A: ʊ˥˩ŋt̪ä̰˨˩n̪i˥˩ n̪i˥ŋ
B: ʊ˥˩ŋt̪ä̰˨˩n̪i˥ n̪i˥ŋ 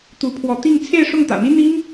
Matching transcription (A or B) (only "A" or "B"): B